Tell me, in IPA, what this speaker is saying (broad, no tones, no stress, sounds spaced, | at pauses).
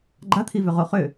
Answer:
ɡ͡ǃ a t̪ʰ i v ʏ ʁ o χ ʏ